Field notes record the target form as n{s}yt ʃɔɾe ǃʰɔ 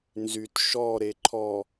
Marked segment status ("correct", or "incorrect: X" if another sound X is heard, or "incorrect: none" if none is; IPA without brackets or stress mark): incorrect: z